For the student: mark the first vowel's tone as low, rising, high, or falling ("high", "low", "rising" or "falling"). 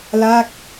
falling